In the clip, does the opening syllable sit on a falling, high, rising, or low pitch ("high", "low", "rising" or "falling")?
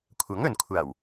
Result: rising